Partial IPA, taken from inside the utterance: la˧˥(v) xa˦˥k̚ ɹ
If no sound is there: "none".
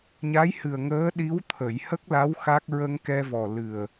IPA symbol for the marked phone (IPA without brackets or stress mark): w